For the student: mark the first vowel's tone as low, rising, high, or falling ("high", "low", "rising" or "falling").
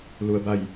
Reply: low